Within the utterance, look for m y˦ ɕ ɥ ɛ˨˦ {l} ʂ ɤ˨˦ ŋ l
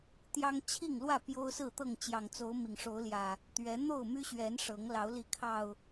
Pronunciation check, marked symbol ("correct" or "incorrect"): incorrect